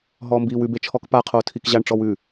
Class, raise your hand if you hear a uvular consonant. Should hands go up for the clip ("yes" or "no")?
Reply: yes